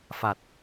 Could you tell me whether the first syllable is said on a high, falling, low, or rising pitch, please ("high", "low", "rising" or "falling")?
low